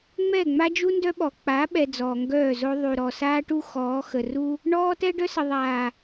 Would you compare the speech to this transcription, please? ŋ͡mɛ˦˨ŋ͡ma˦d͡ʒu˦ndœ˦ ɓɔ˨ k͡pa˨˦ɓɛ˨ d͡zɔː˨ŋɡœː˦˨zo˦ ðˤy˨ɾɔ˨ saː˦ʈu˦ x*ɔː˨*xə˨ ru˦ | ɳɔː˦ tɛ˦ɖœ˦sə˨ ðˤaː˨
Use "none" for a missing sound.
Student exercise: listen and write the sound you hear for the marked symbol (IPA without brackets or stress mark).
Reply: ɔː˨˦